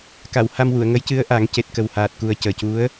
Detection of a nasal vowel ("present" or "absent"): absent